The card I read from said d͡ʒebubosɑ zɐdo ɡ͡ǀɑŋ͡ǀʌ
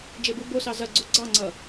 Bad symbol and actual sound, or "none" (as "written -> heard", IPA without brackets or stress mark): d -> ɡ͡ǀ